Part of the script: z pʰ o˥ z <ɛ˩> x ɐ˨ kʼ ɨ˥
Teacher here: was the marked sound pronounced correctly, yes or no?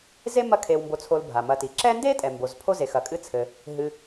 no